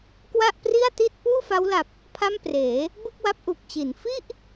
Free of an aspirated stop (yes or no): no